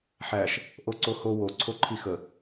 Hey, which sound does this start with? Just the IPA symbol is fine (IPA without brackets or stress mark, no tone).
ħ